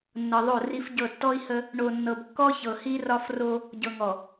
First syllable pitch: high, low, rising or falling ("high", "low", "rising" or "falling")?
low